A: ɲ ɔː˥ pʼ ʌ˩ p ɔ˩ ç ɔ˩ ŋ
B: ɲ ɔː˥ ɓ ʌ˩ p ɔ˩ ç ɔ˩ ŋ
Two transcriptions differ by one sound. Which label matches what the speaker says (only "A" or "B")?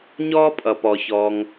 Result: A